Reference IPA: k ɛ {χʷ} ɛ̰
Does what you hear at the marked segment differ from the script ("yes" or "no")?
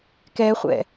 no